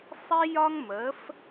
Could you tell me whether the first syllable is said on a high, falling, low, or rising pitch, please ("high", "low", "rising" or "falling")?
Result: high